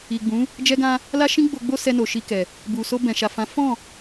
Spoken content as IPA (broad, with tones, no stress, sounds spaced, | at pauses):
i˨ ɡ͡b ũ˨˦ | d͡ʒ ɛ˧ ɡ ã˧ | l a˦ ʃ ĩ˦ ɡ͡b o˧ ɡ͡b o˦ s ɛ˧ n o˨ ʃ i˧ k ɛ˨ | b u˨ s o˧ b ɛ̃˨ ʃ a˨ f ã˨˦ f ɔ̃˦˨